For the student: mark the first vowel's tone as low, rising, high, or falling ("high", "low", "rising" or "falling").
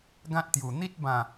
high